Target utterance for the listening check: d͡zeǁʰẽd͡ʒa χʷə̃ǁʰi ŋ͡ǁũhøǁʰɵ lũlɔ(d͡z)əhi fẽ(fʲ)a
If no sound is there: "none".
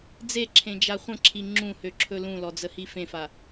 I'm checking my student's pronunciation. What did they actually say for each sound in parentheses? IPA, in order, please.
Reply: d͡z, f

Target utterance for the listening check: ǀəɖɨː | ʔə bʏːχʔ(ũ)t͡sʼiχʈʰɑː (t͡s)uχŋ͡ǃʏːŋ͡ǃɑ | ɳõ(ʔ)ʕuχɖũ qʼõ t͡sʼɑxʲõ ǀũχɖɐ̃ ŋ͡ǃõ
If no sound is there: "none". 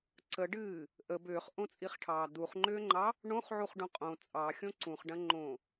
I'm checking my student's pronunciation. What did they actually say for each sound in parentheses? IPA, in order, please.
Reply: õ, d̪, χ

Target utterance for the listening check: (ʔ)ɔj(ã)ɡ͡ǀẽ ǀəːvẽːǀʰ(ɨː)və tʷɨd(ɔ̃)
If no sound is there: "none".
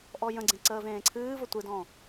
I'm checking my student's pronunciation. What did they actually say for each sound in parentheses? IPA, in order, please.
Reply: ʔ, ə̃, ɨː, ɔ̃

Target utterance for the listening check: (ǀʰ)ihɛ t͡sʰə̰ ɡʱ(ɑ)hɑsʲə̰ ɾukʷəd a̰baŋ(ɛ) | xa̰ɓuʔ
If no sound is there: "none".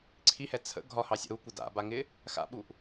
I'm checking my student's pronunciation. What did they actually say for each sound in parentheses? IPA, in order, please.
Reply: ǀʰ, ɒ, ɪ

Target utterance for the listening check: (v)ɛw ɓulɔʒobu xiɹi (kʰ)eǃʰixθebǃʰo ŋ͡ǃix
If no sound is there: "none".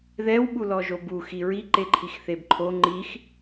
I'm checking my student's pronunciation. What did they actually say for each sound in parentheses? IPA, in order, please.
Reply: ð, ǃ

